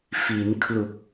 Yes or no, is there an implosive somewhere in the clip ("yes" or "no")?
no